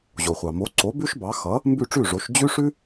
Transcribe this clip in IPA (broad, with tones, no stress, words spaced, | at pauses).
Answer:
ʑo˩χʷɑ˩ mo˩˥ǀo˩˥ bʉ˥ʃbɑ˩˥ xʌ˩˥ | mbʉ˥˩ʈ͡ʂʉ˥˩ʐo˩˥ʃ d͡ʑʉ˥ʂʉ˥